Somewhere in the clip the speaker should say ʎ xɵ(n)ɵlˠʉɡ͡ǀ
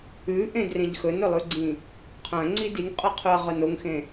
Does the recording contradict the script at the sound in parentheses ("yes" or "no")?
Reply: no